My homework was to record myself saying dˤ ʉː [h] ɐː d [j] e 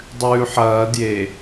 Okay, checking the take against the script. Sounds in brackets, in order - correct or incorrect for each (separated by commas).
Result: incorrect, correct